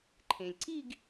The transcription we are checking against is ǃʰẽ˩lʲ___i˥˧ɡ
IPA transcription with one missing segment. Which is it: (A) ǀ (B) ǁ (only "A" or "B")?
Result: A